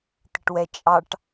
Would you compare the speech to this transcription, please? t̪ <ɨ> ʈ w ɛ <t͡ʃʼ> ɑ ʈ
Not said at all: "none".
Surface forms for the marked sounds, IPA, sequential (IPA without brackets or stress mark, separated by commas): ɪ, t͡ʃʼ